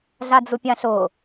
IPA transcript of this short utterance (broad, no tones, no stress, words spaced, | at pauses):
ɮad͡zupʲãɬʊ